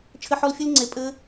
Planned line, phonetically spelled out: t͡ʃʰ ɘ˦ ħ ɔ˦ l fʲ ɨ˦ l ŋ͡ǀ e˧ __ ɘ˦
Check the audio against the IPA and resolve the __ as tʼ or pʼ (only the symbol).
pʼ